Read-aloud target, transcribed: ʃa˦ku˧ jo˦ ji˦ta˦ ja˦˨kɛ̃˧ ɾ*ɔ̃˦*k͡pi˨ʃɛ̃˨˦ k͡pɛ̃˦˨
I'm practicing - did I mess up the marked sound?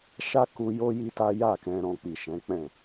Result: yes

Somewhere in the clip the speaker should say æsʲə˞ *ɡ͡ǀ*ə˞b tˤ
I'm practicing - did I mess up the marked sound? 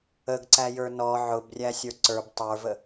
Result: yes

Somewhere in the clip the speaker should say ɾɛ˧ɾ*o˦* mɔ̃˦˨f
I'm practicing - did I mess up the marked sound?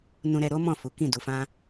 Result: no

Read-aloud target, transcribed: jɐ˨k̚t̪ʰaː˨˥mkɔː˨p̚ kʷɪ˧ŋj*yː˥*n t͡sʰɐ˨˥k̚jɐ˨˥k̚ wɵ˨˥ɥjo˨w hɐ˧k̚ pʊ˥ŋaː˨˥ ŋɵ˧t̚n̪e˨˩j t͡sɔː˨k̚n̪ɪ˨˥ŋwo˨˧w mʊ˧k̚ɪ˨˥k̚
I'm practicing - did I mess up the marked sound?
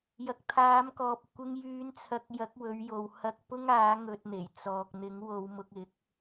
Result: yes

